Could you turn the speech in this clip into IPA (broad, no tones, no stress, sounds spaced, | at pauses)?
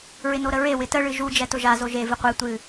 ɹ ɪ n o ɾ ə ɹ e w ɪ t ə ɭ ɨ ʒ u d͡ʒ ɛ t ʊ ʒ a z o ʒ e v ɨ qʷ e tʷ ɨ